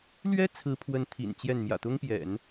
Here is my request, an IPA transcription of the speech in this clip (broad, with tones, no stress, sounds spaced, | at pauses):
l ɥ ɛ˥ t͡sʰ ɹ̩˧˥ pʰ w ə˧˥ n t̪ʰ ḭ˨˩ n t͡ɕ j ɛ˥˩ n m j ä̰˨˩ t̪ ʊ˥ ŋ p j ɛ̰˨˩˦ n